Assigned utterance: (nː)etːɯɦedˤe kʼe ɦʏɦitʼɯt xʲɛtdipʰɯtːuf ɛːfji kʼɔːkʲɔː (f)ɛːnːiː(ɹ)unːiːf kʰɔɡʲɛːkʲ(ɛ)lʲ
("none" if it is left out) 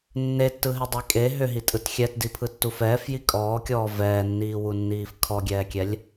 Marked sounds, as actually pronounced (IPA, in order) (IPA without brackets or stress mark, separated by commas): nː, v, w, ɛ